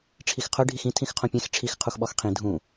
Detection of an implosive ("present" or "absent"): present